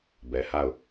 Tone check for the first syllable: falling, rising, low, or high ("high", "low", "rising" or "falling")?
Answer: low